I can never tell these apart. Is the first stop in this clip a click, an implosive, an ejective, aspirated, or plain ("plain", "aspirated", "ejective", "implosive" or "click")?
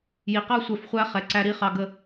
plain